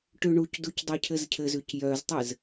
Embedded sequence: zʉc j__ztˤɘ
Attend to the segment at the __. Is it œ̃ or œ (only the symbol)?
œ